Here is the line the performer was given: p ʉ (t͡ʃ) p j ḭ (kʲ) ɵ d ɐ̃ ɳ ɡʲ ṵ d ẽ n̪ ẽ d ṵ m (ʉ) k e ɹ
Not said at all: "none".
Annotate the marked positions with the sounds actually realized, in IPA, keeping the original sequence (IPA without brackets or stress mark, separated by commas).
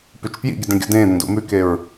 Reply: t͡ʃ, ɡʲ, ʉ